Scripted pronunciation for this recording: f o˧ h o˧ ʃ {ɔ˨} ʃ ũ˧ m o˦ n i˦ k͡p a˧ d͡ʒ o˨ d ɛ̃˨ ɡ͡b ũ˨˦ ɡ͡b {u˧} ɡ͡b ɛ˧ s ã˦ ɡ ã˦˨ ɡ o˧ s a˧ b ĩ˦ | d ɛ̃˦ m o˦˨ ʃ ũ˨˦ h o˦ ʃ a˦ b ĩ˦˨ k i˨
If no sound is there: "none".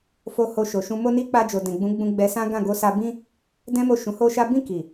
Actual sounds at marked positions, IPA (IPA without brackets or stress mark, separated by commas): o˨, ũ˧